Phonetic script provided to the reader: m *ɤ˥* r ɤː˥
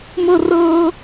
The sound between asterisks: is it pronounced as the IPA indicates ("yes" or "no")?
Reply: yes